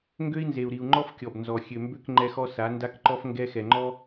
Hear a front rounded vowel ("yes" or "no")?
yes